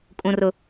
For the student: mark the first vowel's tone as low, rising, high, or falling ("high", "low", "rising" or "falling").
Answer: high